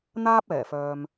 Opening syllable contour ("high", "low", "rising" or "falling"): high